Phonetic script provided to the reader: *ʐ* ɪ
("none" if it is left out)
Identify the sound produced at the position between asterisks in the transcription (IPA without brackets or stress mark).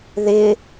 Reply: ð